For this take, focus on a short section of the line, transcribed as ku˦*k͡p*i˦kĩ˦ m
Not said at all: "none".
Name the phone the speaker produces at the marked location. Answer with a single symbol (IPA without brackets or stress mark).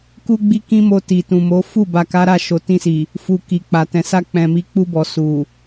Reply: ɡ͡b